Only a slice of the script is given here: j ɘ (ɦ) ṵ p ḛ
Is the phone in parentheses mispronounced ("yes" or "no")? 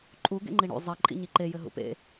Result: no